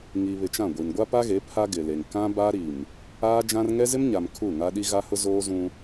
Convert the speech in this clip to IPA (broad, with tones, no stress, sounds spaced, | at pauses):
ŋ i˨ β ɪ˨ t͡ʃ ã˦˨ ɡʷ i˨ n ɡʷ a˦ p a˦ ɣ e˨˦ pʰ a˦ ɡ ɪ˨ l e˨ ŋ k ã˦ b a˦ ɾ i˨ m | aː˦ d͡ʒ ã˦ r ŋ ɛ˦ z ɪ˦ m ɲ a˨ m kʰ u˦˨ ŋ a˦ ɗ i˦ ɣ a˦ h ʊ˦ z oː˦ z ũ˦